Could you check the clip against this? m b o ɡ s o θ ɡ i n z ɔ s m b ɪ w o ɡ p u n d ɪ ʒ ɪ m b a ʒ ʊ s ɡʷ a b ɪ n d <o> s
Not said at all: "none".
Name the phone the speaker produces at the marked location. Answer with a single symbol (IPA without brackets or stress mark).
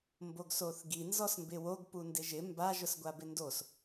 o